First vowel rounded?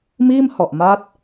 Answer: no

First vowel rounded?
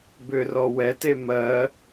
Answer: yes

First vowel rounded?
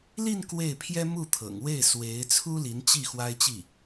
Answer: no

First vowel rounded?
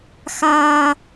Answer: no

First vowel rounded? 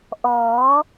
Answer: yes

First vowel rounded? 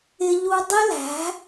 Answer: no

